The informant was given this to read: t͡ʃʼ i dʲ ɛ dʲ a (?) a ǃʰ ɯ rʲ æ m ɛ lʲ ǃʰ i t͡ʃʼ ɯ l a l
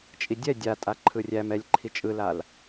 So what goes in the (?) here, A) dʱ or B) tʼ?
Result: B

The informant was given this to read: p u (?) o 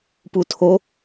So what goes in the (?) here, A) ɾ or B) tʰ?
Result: B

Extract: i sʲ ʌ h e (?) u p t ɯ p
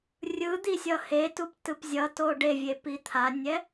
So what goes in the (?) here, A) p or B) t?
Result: B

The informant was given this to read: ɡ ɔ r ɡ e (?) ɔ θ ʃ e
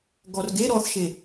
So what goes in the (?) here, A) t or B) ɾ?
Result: B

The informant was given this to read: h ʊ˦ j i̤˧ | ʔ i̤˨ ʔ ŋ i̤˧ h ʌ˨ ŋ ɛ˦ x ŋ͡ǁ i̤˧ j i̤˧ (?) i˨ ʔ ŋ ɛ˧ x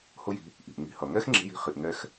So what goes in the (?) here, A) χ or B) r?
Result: A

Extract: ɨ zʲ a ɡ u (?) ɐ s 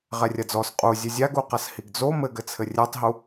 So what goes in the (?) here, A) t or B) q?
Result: B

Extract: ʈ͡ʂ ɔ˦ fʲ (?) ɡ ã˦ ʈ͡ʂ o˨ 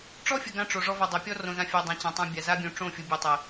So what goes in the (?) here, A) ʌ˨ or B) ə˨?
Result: B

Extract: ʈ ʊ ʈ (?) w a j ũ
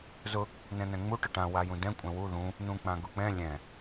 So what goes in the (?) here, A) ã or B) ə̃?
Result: A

